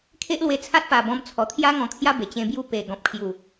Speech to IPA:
kʰ e˦ ʔ l w e˧ t͡sʰ a˦ t̚ p a˨˩ b ɔ̃˧ m t͡sʰ ɔ˨˩ t̪ʰ j a˦ ŋ ɔ̃˧ kʰ j a˦ b e˨˩ t͡ɕ ẽ˧ b j u˥˧ p e˨˩ ɡ ɔ̃˨ p̚ kʰ j u˨˩

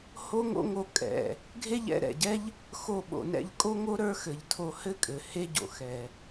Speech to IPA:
h o˥ ŋ o̰˥ ŋ o˧ kʼ ɛ̰˩ | ɡʱ e˥ ʎ ɛ̰˧ ɾ ɛ̰˩ ɟ ɛ˥ ʎ | x o˧ ɓ o̰˩ n ɛ̰˧ ʎ kʼ o˥ ŋ o˥ ɾ ə˞˥ x ɘ˩ ʎ tʰ o˧ h ɘ˥ kʼ ɘ˩ h e˥ ɟ o̰˩ x ɛ˩

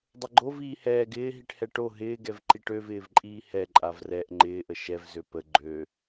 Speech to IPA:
dˤ ə ɡ͡ǃ o v iː h ɛː ɡ ɪː ɦ i ʈ h ɛ ʈ o ɦ ɪː ɡ ɛ v ǃ i ʈ ø v ɪː v ǃʼ iː h ɛ ǃʼ a v r ɛ ʔ ŋ͡ǃ ɪː ʔ ə ʃ ɛ v z ø p ə ɡ͡ǃ ø

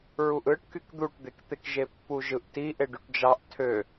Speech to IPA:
ɹ u ʔ ɯ ʈ k y k d̪ u ʈ d̪ e k t̪ e k ʒ e pː u ʒ ɯ ʔ t i ʔ e ɖ y ʈ d͡ʒ ɑ ʔ tʰ ø

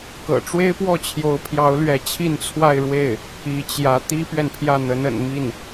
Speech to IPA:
k ɤ̰˨˩ ʈ͡ʂ w e˥ ɪ̯ p w ɔ˥˩ t͡ɕʰ j o˧˥ ʊ̯ pʰ j ɑ˧˥ ʊ̯ l ɥ ɛ˧˥ t͡ɕʰ i˥˧ n t͡sʰ w a˥˧ ɪ̯ ɻ w e˥˩ ɪ̯ | i˧˥ t͡ɕ j ä˧˥ t̪ i˥ p ɥ ɛ˨ n pʰ j ä˥˩ n̪ ə˧˥ n ə̰˨˩ n m i˥˩ n

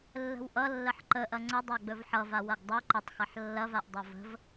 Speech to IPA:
lː ə̤ w ʔ ʌ lː ə ħ ǃ ə ʔ ɐ ŋ͡ǀ ə dˤ a ɡ͡b ɵ v ħ ʌ v a w ɐ ɡ dˤ ɵ ǃ ɘ tˤ x ɐ ħ lː ɐ v a ʔ dˤ ɐ v ə̤ v

